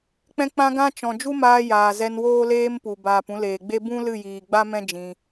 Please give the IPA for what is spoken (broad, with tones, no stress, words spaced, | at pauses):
k͡pɛ̃˧k͡pã˧ɡã˧ t͡ʃɔ̃˨ d͡ʒu˦maː˧ jaː˨ zɛ˧nwoː˦leː˦mpu˨ baː˨pũ˧leː˨ɡ͡be˦ bũ˦ lɨ˦˨jiː˨ɡ͡ba˦mɛ̃˦ d͡ʒĩ˧